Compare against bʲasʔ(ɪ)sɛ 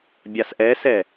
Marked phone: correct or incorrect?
incorrect